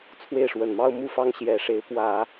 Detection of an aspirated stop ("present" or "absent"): present